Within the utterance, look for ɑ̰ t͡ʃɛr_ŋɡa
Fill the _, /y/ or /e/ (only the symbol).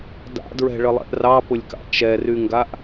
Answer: y